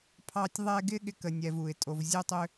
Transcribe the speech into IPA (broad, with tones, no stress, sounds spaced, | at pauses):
pʰ ɑ˦ tʲ ðˤ ɛ˦ ɡ ɪ˥ ɠ ɪ˦ k ə˨ nʲ ɛ˨ v u˩ ɪ̯ tʼ o˨ v zʲ u˦ tˤ ʏ˦